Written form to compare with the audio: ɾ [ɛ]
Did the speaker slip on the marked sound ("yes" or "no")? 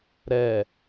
no